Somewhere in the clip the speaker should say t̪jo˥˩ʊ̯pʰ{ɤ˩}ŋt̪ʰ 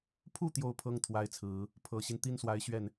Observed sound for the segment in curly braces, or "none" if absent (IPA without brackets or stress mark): ɤ˥